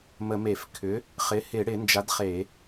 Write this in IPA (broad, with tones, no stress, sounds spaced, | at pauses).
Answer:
m ə˧˩˧ m e˧˩˧ f kʰ ʏ˩˥ | χ ɪ˩˥ h ɪ˧˩˧ ɽ ɪ˧˩˧ n d͡ʒ a˩˥ d χ e˧˩˧